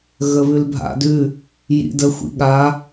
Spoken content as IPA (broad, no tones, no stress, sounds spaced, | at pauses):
ɣ ə β ʉ l bʱ a̰ d ʉ | j ḭ d ə xʷ ḭ ɠ a